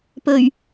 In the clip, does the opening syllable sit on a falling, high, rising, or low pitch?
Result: low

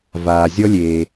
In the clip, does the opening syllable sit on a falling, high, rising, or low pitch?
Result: low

